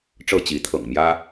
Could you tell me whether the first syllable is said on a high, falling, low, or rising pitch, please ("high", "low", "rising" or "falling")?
falling